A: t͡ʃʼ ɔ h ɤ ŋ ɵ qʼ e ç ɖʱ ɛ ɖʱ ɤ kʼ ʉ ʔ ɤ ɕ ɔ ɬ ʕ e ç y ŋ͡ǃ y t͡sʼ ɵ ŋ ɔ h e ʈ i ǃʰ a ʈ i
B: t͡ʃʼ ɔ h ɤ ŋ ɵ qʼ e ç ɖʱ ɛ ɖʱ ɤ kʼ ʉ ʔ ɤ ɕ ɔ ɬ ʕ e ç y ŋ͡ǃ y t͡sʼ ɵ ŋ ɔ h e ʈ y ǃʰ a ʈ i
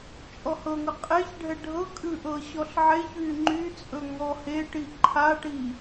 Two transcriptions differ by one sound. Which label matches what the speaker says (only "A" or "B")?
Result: A